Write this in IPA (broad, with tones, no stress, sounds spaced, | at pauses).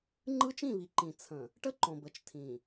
ŋ͡ǃ ɯ˦ t͡ʃ ĩ˦˨ β i˨ ǃ ĩ˨ t͡sʰ ə̃˨ | ʈ ə˦ ǃ õ˨ b ə˨ t͡ʃ tʰ ĩ˨